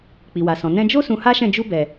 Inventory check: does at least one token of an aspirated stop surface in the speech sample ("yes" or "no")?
no